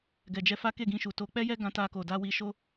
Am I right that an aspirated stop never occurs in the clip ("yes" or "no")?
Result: yes